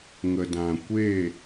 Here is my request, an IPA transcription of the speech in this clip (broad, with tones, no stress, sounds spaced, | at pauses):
ŋ ə˨ d ã˨ kʷ e˦˨